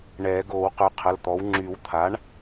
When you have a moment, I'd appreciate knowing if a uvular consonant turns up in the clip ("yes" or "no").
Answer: yes